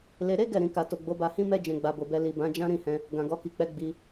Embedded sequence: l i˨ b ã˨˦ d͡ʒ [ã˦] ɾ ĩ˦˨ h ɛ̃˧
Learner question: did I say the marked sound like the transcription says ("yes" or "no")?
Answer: yes